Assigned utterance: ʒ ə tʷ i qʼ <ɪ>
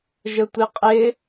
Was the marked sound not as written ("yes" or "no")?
no